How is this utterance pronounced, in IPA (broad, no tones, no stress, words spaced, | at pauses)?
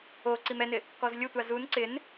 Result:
o ǀimɛnɪ | kɔzlʲʊtʷa zun ǀɪn